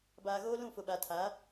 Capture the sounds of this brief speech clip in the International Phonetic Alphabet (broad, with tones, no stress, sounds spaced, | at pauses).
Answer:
b aː˨ ɣ oː˦ l ũ˦˨ f ʊ˨ ɓ a˨ tʰ a˨˦